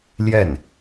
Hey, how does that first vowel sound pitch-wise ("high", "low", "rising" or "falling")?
falling